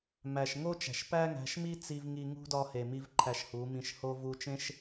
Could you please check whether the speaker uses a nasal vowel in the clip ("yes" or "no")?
yes